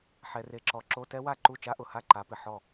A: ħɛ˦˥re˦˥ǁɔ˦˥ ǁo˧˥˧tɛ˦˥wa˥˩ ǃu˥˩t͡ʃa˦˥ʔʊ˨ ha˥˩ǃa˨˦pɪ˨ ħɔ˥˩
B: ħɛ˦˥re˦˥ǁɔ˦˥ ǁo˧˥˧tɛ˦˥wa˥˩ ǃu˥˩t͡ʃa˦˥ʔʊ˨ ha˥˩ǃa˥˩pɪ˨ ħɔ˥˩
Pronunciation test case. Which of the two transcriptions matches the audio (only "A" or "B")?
A